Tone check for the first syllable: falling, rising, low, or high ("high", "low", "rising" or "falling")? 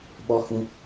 high